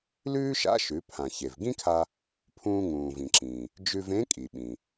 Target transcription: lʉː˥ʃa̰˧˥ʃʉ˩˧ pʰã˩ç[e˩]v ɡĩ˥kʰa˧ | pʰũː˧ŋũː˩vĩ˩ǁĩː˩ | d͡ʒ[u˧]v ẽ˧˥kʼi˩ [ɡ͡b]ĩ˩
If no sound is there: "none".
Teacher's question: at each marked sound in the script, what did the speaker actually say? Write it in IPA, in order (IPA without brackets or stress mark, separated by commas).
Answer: e˩, ʉ˧, ɓ